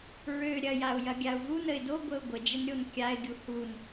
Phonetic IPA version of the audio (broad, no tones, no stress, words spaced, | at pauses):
ɹø ɾʲɐjaʊ̯jɐ ɡʲaʊ̯vu nəɪ̯doɡʷəʊ̯ ɡʷəd͡ʒənɾʲon kʲaɪ̯ɡʲu hun